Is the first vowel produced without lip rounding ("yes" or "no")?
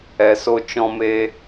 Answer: yes